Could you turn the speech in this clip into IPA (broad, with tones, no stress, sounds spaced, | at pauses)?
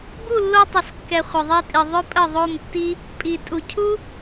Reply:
b u˦˨ lː o˧ tˤ ə˨ s kː ɛ˨ χʷ ə˨ ðˤ ɛ˧ tʼ i˨ ðˤ ʏ˦ pʼ ə˦˨ ðˤ o˦˨ m tː i˦ | pʼ i˨ tʼ u˨ cʰ u˦